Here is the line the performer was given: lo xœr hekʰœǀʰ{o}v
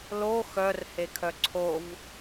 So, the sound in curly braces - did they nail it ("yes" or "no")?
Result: yes